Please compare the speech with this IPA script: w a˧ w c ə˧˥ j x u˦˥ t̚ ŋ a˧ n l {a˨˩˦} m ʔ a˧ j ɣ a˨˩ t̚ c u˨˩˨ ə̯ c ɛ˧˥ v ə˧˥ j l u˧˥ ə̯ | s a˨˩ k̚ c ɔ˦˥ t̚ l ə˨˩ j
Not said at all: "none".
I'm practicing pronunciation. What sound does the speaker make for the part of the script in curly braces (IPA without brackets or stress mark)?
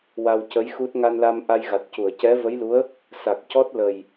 a˧